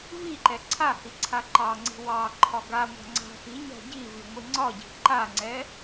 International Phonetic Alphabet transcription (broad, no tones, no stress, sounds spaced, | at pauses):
v i ǃ ɛ ǀʰ a h i ǀʰ a ǃ ɑ ŋ͡ǀ i̤ w ɑ ǃʰ ɒ ɡ a ŋʷ a̤ ŋ͡ǀ a̤ x i ɲ a̤ ɟ i v i ŋʷ i ŋ͡ǀ ɒ ɟ i̤ ǃ a ŋ͡ǀ ɛ